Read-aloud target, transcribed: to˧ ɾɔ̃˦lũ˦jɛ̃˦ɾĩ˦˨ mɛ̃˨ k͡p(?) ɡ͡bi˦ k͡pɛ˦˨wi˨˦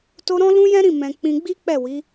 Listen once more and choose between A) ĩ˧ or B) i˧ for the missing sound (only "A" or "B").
A